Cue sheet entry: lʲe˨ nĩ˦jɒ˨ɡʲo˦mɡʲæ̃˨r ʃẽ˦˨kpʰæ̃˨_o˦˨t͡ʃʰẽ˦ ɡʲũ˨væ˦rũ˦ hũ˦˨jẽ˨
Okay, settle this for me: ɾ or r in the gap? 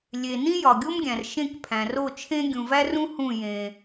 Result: r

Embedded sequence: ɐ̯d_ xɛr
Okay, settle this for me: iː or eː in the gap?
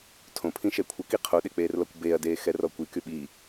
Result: eː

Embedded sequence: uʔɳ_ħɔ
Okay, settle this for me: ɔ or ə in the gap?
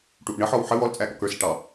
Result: ə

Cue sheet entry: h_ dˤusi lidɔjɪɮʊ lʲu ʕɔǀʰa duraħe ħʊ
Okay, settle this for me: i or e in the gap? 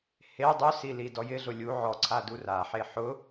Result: e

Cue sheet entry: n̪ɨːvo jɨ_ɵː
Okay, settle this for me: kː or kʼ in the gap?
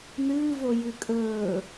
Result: kʼ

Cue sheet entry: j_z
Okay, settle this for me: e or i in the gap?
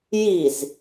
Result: i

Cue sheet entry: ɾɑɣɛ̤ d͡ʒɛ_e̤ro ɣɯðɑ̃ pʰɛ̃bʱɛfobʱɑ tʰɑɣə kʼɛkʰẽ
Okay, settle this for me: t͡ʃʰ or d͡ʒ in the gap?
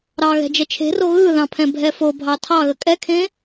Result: t͡ʃʰ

